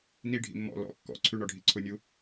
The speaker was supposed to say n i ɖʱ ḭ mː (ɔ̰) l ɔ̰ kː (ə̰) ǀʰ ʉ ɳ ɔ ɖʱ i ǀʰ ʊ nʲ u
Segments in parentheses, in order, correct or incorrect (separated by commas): correct, incorrect